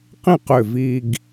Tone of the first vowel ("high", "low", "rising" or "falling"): falling